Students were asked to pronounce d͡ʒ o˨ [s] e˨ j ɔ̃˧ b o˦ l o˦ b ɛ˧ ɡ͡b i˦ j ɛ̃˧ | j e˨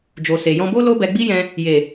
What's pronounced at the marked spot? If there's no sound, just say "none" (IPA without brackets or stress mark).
s